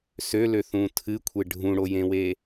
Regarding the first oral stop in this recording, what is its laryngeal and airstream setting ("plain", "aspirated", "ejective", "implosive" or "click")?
aspirated